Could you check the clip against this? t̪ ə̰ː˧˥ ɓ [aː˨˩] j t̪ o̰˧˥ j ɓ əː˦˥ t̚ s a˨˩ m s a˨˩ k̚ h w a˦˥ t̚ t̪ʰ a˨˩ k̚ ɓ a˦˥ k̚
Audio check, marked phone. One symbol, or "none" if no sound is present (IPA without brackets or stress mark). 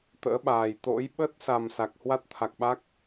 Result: aː˨˩